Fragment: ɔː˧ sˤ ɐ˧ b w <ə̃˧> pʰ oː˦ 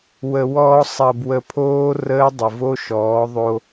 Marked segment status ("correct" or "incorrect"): incorrect